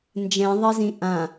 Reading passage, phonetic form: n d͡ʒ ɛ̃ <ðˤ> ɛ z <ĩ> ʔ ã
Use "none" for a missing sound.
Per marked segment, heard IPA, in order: ðˤ, ĩ

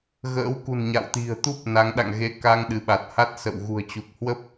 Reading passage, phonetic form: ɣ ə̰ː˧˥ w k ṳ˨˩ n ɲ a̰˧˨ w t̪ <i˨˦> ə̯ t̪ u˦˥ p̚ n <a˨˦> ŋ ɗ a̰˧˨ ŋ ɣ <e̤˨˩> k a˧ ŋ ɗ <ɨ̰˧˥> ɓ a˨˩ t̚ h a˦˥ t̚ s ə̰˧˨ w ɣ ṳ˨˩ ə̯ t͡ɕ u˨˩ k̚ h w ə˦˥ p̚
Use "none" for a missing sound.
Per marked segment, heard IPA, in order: i̤˨˩, a˨˦, e˧, ɨ˨˦

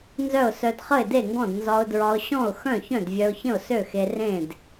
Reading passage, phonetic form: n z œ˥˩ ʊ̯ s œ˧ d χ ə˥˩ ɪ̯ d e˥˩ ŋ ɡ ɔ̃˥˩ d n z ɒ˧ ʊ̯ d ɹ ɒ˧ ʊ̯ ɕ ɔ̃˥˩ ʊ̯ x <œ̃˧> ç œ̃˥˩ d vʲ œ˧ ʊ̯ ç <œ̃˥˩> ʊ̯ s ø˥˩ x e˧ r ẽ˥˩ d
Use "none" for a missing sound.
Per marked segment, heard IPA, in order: œ̃˥˩, ə̃˥˩

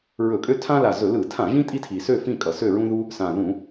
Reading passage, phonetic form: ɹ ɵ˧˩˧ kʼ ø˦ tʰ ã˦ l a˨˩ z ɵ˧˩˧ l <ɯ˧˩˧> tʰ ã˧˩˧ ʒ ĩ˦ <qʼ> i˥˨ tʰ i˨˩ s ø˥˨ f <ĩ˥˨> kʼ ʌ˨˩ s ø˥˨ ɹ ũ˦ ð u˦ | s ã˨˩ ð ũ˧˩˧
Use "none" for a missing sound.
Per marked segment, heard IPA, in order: ɯ˧˩˧, tʼ, ĩ˥˨

